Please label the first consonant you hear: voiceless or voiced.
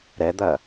voiced